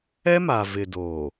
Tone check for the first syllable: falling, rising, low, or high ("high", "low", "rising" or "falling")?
high